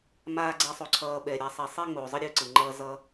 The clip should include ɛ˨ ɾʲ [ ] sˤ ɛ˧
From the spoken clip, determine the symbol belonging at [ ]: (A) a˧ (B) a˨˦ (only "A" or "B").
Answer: B